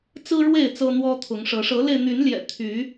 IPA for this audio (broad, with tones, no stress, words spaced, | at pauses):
t͡sɹ̩˦ ɻwe˥˨ɪ̯ t͡sɤ˦n̪wɔ˦t̪ʰʊ˨˦ŋʂɤ˨˦ ʂɤ˨˦le˧ɪ̯n̪y˨˦nljɛ̰˨˩ t̪ʰy˨˦